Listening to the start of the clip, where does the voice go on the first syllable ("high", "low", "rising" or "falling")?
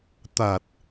low